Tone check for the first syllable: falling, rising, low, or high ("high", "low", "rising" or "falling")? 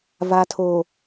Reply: low